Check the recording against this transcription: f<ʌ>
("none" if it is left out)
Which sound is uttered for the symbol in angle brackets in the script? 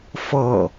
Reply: ʌ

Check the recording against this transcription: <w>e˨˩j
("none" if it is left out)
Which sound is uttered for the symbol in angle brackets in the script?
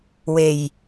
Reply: w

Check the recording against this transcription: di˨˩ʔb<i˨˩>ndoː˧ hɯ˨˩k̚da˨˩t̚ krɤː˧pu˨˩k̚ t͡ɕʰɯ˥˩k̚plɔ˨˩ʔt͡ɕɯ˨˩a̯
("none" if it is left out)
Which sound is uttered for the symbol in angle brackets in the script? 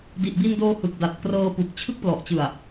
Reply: i˧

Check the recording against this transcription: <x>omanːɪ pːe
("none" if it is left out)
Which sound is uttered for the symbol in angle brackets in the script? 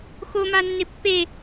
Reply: x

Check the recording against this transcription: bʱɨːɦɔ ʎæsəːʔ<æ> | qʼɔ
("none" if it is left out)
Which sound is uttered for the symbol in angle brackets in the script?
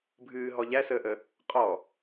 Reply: ə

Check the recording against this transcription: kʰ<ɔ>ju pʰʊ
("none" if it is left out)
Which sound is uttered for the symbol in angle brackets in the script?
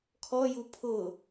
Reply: ɔ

